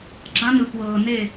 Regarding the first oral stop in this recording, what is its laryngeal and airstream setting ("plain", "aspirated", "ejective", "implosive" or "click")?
click